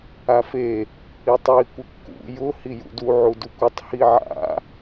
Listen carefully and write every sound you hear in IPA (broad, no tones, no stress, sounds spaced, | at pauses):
a f e | i tˤ j i kʷ ɪ kː ṵ j ʊ h i j ṵ d u ʕ u d u kʷ ɪ tˤ h i ʕ a̰